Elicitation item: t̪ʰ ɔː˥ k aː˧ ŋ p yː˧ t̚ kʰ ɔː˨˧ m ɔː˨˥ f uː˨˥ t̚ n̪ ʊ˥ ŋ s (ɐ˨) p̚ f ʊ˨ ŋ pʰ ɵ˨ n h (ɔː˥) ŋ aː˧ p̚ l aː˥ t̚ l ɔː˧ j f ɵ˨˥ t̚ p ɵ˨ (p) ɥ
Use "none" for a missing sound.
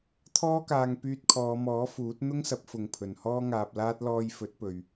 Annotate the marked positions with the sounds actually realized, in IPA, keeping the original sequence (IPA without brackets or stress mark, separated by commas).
ɐ˨˥, ɔː˥, none